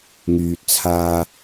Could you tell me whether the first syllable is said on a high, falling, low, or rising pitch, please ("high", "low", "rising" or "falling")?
low